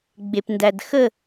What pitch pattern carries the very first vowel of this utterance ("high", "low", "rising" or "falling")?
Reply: low